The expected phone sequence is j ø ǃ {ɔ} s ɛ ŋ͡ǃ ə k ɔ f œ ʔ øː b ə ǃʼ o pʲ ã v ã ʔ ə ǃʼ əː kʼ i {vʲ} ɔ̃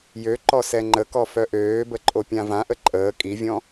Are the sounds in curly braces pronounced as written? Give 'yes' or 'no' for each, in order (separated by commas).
yes, yes